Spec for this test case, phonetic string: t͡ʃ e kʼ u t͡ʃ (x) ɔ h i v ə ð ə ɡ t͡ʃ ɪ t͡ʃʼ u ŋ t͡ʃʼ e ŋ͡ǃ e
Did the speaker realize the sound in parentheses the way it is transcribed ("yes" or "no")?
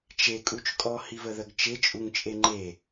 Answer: no